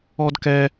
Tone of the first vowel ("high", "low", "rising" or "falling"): high